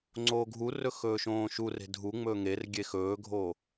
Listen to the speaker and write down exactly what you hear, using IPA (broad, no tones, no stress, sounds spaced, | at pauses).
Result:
ŋ͡ǀ oː ɡʱ u r ɵ x ɵː ʃ õː ʃ u r e̤ dʱ u ŋ͡m ɵː ŋ e r ɡʲ e x ɵː ɡʱ oː